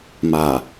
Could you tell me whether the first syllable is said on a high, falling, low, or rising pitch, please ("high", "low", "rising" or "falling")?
low